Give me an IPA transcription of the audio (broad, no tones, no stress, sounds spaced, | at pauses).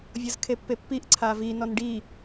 vʲ ɤ z kʰ e pː e pː i ʔ ǀʰ a v i n ɔ n ɖ i